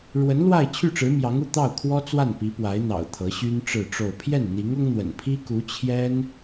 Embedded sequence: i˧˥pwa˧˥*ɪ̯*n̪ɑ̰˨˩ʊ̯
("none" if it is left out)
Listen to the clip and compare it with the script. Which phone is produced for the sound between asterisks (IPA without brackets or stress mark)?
ɪ̯